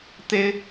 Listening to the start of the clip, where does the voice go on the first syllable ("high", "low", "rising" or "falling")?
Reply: high